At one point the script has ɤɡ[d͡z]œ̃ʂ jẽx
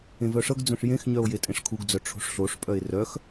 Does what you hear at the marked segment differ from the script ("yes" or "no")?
no